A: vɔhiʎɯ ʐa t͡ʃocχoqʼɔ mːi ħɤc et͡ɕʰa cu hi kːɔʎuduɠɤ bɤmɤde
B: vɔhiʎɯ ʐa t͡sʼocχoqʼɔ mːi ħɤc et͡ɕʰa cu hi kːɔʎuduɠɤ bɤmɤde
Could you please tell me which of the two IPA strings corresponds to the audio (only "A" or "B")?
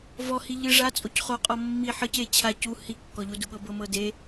B